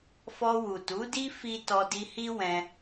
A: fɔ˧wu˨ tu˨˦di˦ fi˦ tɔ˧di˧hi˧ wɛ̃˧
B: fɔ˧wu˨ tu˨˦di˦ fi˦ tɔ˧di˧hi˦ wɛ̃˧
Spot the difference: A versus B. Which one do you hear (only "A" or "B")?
B